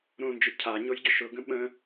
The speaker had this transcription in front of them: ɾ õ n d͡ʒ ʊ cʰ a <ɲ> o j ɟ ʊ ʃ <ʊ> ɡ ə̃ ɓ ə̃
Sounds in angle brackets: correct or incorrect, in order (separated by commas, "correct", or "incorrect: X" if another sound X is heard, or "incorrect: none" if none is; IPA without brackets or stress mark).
correct, correct